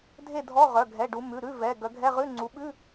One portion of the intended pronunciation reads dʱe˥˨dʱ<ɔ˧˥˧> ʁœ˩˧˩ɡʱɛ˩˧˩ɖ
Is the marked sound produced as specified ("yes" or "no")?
yes